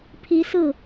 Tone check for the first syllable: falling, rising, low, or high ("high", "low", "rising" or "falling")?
rising